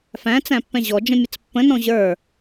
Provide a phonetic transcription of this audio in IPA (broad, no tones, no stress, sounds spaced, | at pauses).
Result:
f æ̃ t͡s æ̃ pː ɛ̃ ʑ ɔ d͡ʒ ə̃ mʲ ə t͡s pː ə̃ n ɔ̃ ʑ ə˞